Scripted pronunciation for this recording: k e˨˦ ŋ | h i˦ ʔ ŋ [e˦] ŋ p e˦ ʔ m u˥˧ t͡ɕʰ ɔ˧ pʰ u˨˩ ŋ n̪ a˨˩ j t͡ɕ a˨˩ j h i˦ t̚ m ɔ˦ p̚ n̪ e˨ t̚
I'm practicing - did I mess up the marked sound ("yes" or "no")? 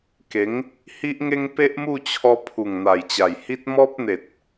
no